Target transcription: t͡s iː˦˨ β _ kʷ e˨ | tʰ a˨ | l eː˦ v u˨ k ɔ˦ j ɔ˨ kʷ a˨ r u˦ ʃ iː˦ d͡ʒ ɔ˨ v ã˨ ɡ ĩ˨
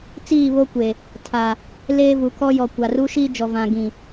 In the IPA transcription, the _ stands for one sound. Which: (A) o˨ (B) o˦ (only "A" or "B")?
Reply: B